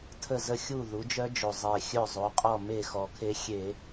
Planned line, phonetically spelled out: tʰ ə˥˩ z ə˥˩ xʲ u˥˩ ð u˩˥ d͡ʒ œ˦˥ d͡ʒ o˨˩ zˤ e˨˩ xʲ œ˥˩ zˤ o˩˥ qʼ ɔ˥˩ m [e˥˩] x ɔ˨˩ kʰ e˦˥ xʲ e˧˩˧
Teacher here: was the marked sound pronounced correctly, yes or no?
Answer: yes